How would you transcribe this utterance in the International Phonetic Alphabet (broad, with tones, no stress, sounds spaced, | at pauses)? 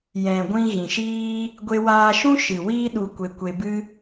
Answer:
j ɛ̃˨ ɡʷ ĩ˧ ɣ ĩ˨ ʃ iː˦ | ɡʷ e˧ w aː˧ ʃ ũ˦ ʃ ɨ˨ w iː˦ ɗ u˧ kʷ e˧ kʷ e˧ b ɨ˦